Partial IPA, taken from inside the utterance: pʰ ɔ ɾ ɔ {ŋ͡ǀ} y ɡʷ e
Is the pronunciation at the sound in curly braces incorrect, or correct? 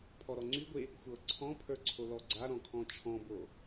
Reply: correct